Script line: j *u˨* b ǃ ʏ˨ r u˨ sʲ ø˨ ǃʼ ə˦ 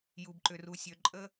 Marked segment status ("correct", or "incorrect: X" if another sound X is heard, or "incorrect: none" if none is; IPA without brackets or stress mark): correct